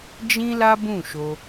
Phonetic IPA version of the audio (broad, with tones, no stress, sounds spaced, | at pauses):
d͡ʒ ĩ˦ l a˦ b ũ˦˨ ʃ o˧